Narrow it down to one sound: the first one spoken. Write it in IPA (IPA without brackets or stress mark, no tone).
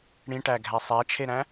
ɽ